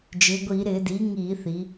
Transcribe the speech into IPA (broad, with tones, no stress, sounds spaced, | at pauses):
d͡ʒ ɪː˩˧ ɡʷ iː˧˩˧ ɾ ɪː˧˩˧ d iː˩˥ ŋ iː˧˩˧ θ i˩˧